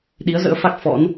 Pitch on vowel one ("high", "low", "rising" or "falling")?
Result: rising